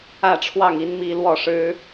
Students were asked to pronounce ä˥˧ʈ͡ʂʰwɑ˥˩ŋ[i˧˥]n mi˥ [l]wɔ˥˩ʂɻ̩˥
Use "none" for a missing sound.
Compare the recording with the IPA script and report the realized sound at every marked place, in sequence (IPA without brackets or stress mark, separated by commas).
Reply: i˥, l